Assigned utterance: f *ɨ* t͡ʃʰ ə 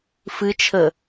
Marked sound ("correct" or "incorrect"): correct